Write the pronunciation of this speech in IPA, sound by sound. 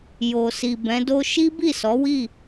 j o˨ s i˨ b ɛ̃˨˦ d o˦ ʃ i˦ b i˦˨ s ɔ˨˦ w i˦˨

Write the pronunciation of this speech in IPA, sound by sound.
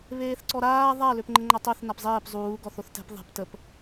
β eː θ ǀ ɔ ɾ aː ðˤ a l ø p ŋ͡ǃ ə ŋ͡ǃ a tˤ œ θ n a p zˤ eː p zˤ uː ɡ ɔ θ o θ t ɛ̤ p ðˤ ɛ̤ p t ə p

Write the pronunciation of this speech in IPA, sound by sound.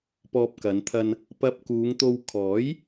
p ɔː˧ p̚ k ɐ˨˧ n t̪ʰ ɐ˧ n | p ɐ˧ p̚ k uː˨˧ ŋ t̪ o˧ w kʰ ɔː˨˥ j

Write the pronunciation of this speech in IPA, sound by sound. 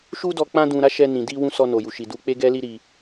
ʃ u˦ d ɔ˧ k͡p ã˦ d ũ˧ ɾ a˦ ʃ ɛ˧ n ĩ˨ d i˧ w ũ˧ s ɔ˧ n o˨ j u˨ ʃ i˨ d u˧ k͡p e˦ ɡ ɛ˦ l i˦ ɾ i˧

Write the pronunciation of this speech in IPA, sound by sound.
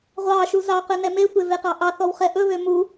ʁʷ ɑ ʃ u z ɑ q ø n ɛ m e tʷ e v e q ɑ ʔ ɑ θ ɔ w χ ɛ ʔ ɵ β ø m u

